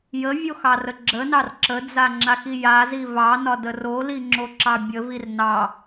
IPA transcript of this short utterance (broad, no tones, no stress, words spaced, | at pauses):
jəvʲoxɑrə ɡ͡ǁənɑr ǁəd͡zaŋ͡ǁaxi jazi vɑnɒdə roliŋ͡ǁoǁɑ bʲəvir nɑ